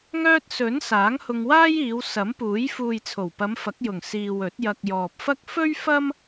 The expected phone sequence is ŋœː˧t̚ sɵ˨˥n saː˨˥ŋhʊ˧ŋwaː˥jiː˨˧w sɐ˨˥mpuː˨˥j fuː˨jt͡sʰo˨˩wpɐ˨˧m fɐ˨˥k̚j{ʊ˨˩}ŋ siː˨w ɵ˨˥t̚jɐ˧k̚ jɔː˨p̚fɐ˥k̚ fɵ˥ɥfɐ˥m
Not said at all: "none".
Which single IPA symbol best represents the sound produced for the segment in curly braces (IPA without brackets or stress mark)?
ʊ˨˩